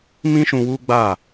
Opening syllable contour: high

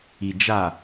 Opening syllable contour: low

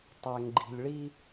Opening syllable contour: low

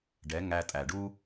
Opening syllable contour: rising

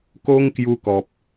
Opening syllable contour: high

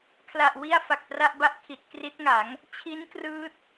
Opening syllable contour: low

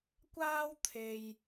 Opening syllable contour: high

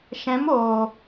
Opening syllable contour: rising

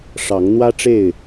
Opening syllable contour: rising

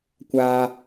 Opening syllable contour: high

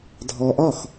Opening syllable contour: low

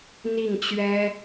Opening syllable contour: falling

